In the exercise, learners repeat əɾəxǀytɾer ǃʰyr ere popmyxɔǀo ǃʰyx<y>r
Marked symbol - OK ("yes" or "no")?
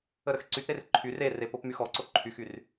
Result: yes